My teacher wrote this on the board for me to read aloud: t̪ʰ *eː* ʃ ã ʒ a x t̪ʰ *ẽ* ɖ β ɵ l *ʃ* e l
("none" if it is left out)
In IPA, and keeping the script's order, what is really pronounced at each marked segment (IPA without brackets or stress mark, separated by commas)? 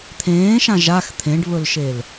ẽː, ẽ, ʃ